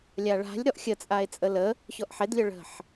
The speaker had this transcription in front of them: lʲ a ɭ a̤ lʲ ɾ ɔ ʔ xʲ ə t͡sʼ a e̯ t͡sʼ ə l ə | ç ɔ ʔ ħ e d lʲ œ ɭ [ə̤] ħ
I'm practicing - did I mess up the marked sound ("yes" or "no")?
no